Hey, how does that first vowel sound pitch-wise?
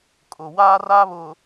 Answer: low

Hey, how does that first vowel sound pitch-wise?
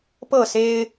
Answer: falling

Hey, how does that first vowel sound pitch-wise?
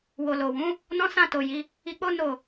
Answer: low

